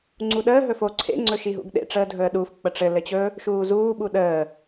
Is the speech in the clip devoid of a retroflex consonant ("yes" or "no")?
no